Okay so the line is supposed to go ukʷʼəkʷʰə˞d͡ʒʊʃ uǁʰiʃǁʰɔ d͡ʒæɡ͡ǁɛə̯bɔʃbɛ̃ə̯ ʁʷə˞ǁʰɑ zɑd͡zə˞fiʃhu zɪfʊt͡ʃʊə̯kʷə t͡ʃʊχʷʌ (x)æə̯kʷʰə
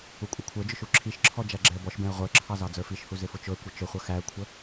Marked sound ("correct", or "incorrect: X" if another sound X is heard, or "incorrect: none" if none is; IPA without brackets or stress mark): correct